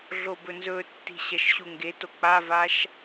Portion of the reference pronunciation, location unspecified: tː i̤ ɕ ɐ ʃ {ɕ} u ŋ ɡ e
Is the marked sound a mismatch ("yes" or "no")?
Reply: no